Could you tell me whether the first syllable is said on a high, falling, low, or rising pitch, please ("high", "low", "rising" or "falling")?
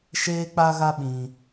high